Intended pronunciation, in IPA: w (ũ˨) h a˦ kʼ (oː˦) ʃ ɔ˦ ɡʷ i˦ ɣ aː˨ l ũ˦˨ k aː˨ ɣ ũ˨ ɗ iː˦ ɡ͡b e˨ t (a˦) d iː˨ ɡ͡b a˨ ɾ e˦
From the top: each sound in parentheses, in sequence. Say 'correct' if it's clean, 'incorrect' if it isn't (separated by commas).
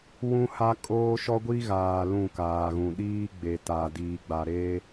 incorrect, correct, incorrect